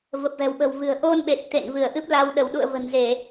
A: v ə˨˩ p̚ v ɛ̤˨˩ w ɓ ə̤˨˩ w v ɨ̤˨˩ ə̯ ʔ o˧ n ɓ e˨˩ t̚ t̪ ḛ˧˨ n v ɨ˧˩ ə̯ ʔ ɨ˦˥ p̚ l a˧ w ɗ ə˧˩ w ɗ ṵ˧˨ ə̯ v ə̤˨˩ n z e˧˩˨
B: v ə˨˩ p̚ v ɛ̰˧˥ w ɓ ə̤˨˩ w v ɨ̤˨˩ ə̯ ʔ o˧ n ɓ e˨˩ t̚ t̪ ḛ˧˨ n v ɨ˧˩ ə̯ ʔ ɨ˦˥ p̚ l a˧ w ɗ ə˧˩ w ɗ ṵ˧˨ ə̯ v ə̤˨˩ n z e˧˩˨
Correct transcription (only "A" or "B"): A